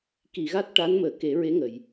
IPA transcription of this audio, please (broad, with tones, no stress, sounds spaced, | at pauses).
k i˨˩˨ ɣ a˦˥ t̚ ʈ a˧˥ n m əː˨˩˦ k e˨˩˦ ɹ e˧˥ ŋ ə˨˩˨ j